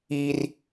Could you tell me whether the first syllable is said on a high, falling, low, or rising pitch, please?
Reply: high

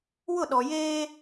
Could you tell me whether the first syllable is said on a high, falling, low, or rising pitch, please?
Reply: falling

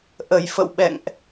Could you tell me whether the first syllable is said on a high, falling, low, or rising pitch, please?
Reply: low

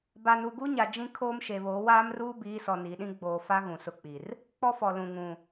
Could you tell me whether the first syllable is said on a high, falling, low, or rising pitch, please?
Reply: low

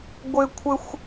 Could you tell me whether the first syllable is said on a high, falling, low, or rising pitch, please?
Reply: high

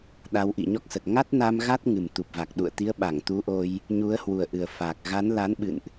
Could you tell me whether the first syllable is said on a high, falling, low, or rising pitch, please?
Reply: rising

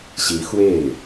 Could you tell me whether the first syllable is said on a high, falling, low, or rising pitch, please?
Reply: rising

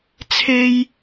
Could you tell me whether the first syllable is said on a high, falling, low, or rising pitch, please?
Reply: high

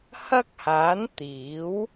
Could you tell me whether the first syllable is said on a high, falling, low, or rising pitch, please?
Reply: high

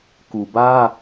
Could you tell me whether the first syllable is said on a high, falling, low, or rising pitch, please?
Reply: low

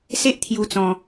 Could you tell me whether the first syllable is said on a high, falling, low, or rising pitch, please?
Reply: high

